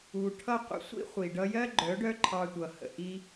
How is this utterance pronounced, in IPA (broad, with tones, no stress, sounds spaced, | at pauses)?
u˨ ʈʰ ʌ˦ qʷ ə̰˧ sʷ ḭ˦ χʷ i˨ ɖ ʌ˧ j ɜ˦ ɡ͡ǃ œ˨˦ ɖ œ˦ ǃʰ ɑ˧ tʷ ʌ˨ h ə̰˨ ʔ i˦